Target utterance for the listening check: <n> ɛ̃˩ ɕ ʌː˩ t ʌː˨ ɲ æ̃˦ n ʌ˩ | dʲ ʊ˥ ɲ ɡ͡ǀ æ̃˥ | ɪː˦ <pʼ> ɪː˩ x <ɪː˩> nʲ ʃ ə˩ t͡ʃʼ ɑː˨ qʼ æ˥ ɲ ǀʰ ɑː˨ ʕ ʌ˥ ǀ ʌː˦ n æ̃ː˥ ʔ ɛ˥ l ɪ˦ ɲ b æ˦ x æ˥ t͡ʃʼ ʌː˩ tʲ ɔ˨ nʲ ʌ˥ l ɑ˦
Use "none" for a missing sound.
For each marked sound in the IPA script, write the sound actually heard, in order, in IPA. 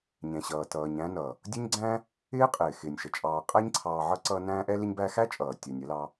ɲ, qʼ, ɪː˩

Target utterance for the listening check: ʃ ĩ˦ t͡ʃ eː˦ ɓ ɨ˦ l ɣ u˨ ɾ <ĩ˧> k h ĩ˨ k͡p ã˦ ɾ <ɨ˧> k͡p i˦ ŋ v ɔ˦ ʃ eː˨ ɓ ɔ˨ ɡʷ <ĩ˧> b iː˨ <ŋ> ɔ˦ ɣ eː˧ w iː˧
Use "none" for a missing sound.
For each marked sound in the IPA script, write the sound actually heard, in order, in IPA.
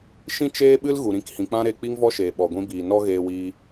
ĩ˧, e˧, ĩ˧, n

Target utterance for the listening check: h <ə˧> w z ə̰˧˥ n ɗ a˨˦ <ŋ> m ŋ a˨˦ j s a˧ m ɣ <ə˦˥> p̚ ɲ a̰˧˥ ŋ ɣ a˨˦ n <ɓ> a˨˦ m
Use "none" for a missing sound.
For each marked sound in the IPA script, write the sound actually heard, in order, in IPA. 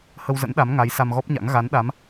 ə˧, none, ɔ˦˥, ɗ

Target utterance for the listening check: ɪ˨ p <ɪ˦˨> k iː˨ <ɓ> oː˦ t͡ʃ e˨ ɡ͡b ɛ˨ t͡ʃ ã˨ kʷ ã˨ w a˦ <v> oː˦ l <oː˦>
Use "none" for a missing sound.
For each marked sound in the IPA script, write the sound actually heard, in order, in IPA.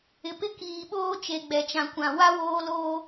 ɪ˦, ɓ, w, oː˦

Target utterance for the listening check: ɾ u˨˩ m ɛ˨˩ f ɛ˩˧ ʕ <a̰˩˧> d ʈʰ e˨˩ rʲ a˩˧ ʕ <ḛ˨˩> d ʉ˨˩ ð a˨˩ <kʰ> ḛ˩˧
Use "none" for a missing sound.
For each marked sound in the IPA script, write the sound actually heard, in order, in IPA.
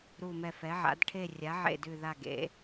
a̰˩˧, ḛ˨˩, ɡ

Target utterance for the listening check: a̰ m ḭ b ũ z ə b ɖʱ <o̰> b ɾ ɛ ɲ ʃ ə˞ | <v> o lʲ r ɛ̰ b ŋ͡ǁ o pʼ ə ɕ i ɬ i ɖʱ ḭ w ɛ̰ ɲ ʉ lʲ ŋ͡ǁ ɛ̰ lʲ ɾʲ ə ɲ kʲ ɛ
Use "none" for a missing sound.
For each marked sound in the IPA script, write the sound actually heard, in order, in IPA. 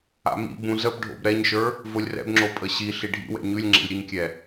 o̰, v

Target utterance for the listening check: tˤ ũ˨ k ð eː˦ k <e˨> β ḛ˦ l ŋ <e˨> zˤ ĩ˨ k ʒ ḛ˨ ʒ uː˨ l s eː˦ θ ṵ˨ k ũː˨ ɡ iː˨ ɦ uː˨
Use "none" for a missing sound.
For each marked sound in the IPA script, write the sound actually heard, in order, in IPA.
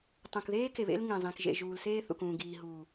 e˨, ẽ˨

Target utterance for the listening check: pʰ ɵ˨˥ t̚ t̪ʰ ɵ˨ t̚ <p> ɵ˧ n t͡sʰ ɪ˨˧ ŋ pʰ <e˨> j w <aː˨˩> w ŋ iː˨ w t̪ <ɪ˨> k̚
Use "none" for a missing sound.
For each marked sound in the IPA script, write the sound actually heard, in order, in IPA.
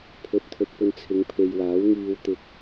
p, e˨, aː˨˥, ɪ˨

